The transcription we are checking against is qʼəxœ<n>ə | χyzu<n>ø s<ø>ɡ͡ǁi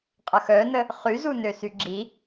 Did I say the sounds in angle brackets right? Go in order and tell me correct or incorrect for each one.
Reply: correct, correct, incorrect

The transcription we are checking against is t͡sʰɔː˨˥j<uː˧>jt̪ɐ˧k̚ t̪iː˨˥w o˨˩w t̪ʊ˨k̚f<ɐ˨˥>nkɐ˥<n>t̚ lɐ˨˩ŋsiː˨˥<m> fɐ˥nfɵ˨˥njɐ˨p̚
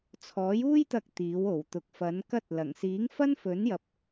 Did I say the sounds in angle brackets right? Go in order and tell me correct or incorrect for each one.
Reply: incorrect, correct, incorrect, incorrect

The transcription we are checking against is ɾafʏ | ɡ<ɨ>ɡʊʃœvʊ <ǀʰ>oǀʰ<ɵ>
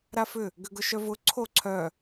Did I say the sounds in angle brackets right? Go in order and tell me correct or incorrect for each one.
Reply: incorrect, correct, incorrect

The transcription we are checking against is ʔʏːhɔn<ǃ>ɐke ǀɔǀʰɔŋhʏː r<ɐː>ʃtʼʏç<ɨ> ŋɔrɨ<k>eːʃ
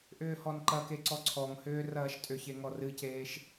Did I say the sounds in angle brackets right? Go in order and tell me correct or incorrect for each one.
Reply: correct, correct, incorrect, incorrect

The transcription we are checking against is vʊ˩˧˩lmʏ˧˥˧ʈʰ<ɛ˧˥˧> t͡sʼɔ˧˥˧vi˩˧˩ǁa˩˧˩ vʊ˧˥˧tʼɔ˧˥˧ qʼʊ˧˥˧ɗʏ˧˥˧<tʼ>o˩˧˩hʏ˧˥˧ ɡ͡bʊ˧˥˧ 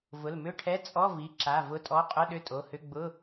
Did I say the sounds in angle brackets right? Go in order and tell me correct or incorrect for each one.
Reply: correct, correct

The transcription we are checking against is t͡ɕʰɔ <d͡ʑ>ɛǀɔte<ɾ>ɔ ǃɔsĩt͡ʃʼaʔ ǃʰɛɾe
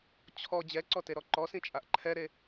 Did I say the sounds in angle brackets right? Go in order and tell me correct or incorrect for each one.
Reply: correct, correct

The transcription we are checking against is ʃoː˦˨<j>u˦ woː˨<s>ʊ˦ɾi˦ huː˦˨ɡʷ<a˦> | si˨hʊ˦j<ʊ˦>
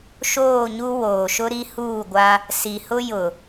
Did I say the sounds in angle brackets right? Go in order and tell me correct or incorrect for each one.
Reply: incorrect, incorrect, correct, incorrect

